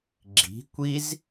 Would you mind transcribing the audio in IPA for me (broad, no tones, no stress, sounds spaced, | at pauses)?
ɡ͡ǁ i̤ kʷ i z